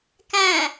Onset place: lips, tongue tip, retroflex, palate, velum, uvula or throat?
velum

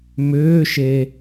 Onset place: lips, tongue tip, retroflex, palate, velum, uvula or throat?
lips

